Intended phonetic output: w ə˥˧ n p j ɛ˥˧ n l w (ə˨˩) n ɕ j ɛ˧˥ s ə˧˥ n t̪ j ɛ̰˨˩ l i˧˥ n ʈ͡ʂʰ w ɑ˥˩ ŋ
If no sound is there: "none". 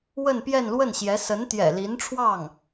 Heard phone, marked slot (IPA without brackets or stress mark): ə˥˩